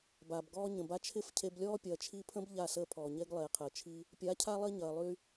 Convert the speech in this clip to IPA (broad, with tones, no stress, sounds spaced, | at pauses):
b aː˨ b ɡ ɔː˧ ɲ ə̃˨ b a˧ t͡ʃʰ ɪ˦˨ f cʰ e˧ b lʲ ɔː˦ pʲ ɐː˨ t͡ʃʰ i˧ pʰ ə̃˦ b ʎ a˦˨ s əː˦ pʰ ɔː˨ ɲ e˦ ɡ lˠ eː˨ qʰ əː˨ t͡ʃʰ i˧ | pʲ a˨˦ cʰ a˦ lˠ i˧ ɲ ɐː˨ lˠ y˧